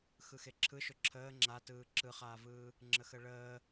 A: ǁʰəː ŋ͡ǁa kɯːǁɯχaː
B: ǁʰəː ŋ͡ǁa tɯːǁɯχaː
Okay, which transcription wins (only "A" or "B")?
B